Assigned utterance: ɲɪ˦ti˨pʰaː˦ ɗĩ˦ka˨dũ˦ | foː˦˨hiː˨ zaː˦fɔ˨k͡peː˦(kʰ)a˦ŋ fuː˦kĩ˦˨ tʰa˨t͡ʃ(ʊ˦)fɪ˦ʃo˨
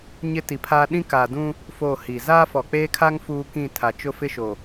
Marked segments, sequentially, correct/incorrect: correct, correct

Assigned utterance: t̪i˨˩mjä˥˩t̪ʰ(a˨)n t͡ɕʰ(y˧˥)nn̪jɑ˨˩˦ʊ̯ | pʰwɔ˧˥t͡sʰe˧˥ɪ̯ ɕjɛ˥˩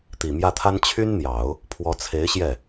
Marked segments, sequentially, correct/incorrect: incorrect: a˥, incorrect: y˥

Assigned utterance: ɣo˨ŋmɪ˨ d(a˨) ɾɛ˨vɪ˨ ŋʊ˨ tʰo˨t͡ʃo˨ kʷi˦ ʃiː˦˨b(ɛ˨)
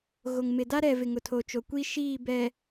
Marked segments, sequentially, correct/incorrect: incorrect: a˦, correct

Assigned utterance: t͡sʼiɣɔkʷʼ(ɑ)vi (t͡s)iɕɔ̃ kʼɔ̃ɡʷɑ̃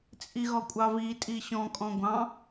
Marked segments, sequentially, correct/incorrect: correct, incorrect: tʼ

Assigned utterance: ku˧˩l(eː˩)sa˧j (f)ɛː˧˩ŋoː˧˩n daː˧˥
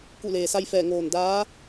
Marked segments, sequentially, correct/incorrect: correct, correct

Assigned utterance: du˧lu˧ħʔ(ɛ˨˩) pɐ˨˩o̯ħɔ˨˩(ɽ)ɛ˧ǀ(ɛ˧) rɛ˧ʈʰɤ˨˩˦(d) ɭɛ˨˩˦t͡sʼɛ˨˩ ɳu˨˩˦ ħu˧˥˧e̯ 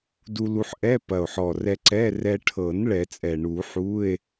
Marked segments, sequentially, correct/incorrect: incorrect: ɛ˧˥˧, incorrect: r, incorrect: ɛ˧˥˧, incorrect: n

